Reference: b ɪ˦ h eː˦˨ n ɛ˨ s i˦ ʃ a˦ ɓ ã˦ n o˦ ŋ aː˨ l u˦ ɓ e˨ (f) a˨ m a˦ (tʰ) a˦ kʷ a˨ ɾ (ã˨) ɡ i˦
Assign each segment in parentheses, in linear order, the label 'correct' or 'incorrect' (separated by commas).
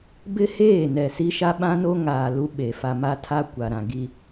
correct, correct, correct